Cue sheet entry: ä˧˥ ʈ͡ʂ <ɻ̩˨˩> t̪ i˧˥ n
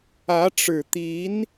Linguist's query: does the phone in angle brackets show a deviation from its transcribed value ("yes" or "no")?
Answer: no